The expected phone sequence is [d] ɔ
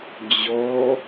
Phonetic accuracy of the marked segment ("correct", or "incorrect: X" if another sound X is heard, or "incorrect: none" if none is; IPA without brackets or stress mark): incorrect: d͡ʑ